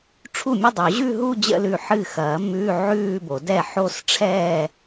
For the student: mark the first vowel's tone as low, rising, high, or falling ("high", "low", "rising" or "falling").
falling